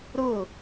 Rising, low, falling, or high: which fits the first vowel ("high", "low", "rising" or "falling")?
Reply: falling